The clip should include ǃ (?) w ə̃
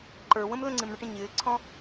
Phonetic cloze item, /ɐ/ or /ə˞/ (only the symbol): ə˞